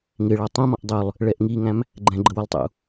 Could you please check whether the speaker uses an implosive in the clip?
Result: no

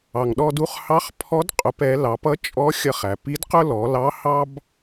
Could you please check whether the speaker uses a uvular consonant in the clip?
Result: yes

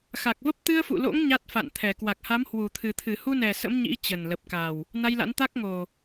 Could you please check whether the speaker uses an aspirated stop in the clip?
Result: yes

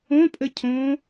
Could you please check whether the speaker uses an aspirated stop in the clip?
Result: yes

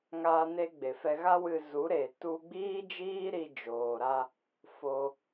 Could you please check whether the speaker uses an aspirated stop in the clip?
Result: no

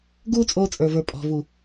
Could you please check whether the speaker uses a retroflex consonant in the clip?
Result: no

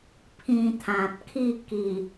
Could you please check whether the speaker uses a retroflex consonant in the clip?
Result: no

